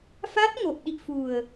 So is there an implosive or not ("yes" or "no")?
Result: yes